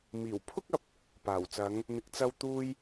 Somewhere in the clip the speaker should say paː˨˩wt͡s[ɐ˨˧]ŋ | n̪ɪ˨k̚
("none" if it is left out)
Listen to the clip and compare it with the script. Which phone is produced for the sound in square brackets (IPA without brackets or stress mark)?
ɐ˨˧